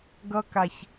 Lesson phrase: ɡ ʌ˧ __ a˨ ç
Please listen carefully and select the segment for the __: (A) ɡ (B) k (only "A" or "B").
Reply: B